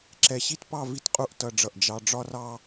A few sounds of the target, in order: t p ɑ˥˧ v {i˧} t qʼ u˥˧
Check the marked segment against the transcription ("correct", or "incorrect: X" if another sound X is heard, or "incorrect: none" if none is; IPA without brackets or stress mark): incorrect: i˥